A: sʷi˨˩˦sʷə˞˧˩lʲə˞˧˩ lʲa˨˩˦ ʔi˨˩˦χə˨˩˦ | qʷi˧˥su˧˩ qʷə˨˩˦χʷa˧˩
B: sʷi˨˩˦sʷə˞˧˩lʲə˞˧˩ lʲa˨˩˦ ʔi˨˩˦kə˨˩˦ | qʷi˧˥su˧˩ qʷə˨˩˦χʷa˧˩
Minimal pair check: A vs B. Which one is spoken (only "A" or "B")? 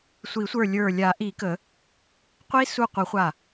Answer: B